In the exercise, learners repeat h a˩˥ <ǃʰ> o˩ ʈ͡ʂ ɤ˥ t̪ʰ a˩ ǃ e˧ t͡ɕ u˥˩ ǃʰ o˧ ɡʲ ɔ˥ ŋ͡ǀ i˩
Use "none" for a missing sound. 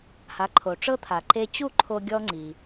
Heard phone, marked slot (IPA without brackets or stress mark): ǃʰ